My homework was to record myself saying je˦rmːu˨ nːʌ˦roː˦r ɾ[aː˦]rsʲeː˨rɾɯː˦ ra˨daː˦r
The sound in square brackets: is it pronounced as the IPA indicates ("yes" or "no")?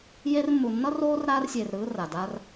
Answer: yes